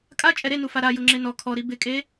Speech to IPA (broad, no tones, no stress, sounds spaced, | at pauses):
kʼ a t͡ʃʼ ɛ ɾ e n u f a ɾ a j ʊ ŋ͡ǁ e n ɔ kʰ ɔ ɾ i b ɪ kʼ e